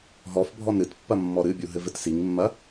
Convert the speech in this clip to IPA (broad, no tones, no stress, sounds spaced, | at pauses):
ɦ ɔ f bʱ ɔ n ɾ ɨ t pː ɐ mː ɔ ɾ ɨ bʲ u ɦ ɘ v ɘ t s i ŋ mː ɐ